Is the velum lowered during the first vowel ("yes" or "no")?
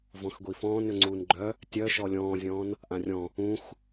yes